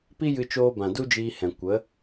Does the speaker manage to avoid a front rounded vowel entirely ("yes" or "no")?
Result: yes